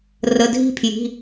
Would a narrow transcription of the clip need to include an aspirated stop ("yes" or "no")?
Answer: yes